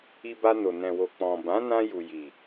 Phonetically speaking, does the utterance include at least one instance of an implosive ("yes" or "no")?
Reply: no